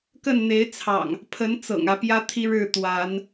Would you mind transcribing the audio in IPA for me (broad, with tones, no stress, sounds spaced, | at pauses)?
k ə˥˨ n n̪ e˨˦ ɪ̯ t͡sʰ ɑ̰˨˩ ŋ | pʰ ə˨˦ n t͡s ɤ̰˨˩ ŋ ä˨˦ p j ä˦ t̪ʰ i˦ ɻ ɻ̩˥˨ t̪ w a˨˦ n